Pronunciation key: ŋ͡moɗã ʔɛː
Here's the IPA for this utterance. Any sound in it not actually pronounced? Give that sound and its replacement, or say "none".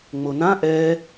ɗ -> n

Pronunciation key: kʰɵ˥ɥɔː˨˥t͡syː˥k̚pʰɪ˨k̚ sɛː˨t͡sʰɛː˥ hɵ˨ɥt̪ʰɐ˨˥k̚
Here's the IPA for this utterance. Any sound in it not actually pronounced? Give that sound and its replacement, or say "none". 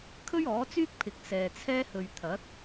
none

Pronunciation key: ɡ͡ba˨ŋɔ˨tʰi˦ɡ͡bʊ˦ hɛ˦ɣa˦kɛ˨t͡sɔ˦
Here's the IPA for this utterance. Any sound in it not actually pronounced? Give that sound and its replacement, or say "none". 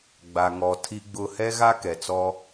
none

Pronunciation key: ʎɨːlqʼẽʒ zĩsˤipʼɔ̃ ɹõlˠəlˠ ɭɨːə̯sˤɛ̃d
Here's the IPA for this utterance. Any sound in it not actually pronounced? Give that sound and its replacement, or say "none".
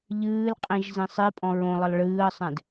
ẽ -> ĩ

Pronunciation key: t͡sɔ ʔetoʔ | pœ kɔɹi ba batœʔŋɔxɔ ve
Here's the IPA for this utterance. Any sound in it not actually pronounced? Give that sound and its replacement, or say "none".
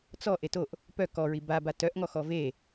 none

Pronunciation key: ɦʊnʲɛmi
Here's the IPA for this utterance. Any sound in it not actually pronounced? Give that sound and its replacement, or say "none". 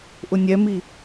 ɦ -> ʔ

